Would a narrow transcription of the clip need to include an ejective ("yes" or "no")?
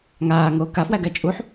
yes